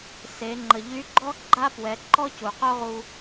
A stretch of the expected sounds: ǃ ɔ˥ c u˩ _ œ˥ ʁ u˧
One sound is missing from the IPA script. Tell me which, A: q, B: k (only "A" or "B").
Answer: A